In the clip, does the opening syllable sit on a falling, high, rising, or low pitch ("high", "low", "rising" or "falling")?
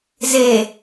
low